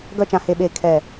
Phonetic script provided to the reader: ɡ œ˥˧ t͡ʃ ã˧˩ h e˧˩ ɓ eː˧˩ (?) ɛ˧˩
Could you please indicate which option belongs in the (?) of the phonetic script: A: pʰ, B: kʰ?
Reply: B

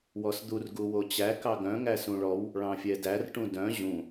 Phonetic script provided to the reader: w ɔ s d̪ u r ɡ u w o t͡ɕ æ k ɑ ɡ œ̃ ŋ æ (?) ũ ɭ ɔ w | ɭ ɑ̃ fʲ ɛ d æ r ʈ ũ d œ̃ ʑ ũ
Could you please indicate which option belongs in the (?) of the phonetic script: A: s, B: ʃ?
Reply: A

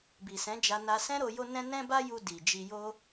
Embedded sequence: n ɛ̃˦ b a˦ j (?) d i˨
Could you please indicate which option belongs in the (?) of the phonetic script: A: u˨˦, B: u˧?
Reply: B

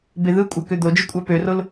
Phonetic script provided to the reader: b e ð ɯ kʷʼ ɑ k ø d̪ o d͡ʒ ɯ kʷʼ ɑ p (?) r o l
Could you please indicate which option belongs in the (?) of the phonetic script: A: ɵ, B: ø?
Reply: B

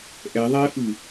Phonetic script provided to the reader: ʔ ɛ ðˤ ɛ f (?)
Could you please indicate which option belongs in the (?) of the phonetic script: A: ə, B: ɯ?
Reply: B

